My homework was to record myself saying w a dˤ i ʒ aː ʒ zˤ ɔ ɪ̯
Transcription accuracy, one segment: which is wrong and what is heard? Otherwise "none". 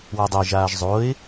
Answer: ɔ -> o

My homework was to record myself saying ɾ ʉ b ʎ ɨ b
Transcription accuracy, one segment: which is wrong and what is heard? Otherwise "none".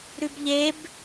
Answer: ɨ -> e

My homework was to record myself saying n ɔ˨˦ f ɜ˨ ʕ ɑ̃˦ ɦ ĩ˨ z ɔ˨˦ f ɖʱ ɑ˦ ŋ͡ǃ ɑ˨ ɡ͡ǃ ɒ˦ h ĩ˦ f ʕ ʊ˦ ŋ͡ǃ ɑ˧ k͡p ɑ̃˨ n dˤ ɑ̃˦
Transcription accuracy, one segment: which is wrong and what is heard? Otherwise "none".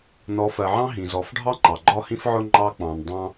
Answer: none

